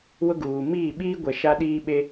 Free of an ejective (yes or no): yes